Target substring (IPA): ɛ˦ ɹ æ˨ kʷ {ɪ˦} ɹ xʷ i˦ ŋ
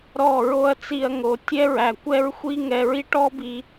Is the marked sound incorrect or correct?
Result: incorrect: ɛ˦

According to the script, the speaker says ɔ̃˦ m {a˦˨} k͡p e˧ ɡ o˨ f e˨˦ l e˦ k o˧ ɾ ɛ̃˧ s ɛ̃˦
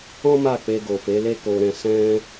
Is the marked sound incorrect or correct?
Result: correct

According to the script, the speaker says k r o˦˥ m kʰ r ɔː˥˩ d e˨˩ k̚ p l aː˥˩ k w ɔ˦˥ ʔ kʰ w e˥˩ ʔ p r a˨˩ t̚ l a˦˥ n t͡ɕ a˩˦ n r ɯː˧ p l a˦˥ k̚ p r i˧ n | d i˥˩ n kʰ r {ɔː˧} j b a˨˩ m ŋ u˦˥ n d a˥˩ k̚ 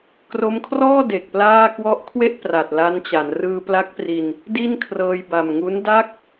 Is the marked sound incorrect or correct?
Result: incorrect: ɤː˧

